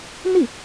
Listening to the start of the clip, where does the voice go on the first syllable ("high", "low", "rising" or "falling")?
falling